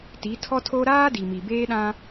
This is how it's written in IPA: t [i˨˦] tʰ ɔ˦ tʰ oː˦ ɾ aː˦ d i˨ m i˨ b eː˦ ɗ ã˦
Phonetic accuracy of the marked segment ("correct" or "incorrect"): correct